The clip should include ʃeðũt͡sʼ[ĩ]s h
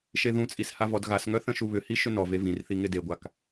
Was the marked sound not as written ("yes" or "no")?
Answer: yes